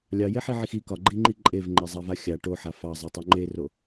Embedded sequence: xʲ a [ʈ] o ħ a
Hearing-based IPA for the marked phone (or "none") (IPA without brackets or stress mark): ʈ